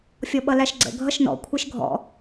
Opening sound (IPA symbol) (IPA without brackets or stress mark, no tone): fʲ